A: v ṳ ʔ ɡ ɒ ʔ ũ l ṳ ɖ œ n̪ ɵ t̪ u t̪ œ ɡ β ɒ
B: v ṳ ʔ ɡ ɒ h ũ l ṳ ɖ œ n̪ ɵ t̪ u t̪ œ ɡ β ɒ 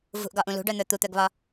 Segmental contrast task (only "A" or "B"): A